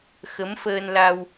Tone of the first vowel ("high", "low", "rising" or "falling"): rising